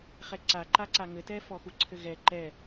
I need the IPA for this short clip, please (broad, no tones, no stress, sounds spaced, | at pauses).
χ ɛ ǀ a ǃ a ǀ a ŋ ɘ t ɛ f ɔ x u ǀʰ ɘ ɣ ɛ ǃ ɛ